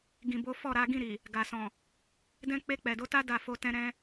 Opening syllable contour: low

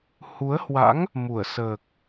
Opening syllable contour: rising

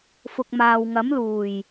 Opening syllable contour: low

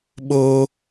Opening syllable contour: high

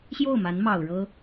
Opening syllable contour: falling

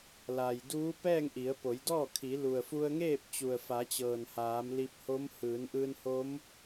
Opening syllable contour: low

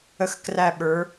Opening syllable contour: falling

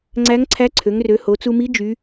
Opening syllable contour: rising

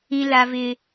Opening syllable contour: high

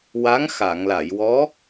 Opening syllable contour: rising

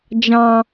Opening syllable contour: low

